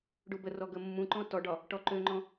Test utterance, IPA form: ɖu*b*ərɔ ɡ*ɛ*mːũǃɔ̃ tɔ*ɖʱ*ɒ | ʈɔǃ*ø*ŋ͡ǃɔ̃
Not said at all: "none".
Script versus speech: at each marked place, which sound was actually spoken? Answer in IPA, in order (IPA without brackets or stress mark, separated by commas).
b, ə, ɖ, ø